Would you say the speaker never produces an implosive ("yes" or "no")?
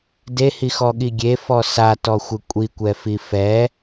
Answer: no